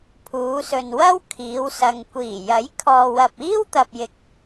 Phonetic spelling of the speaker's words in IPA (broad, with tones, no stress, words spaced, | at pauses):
pʰuː˨˧sɵ˨nwɐ˥w kʰiː˨˧wsɐ˨ŋ kʷiː˨˩ jɐ˨˥jkʰɔː˨wɐ˨p̚iː˥w t̪ɐ˨p̚jɪ˨k̚